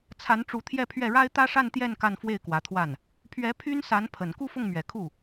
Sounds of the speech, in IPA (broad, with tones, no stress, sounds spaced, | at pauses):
t͡sʰ a˧˥ n ʈ͡ʂ u˧˥ t̪ʰ j ɛ˥˧ pʰ ɥ ɛ˥˩ ɻ a˥ ɪ̯ t̪ ä˥ ʂ a˥˧ n t̪ j ɛ˥˧ n k a˥˧ n f w e˥˩ ɪ̯ k w ä˧˥ t̪ʰ w a˥˩ n | pʰ ɥ ɛ˧˥ pʰ y˥ n s a˧˥ n pʰ ə˨˩ n k u˥˧ f ʊ˥˩ ŋ m ɥ ɛ˨˩ kʰ u˥˩